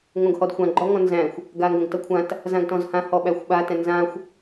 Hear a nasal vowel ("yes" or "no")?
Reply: yes